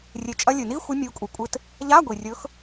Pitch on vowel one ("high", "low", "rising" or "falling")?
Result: rising